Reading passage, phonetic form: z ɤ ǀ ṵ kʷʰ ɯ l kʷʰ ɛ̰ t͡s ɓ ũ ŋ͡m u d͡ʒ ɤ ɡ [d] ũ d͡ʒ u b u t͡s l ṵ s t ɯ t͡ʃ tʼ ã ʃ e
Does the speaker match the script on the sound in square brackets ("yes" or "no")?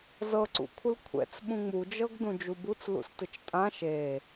yes